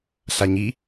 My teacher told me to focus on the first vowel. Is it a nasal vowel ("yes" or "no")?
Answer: no